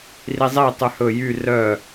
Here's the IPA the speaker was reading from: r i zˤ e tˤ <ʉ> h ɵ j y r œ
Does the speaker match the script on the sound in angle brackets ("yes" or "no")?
yes